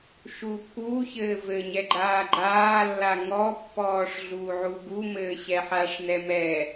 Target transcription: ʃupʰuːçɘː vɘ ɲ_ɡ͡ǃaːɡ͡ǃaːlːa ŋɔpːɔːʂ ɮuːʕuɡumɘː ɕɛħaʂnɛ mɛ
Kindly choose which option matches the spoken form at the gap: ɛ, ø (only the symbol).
ɛ